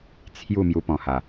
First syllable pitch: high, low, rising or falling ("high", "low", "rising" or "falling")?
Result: falling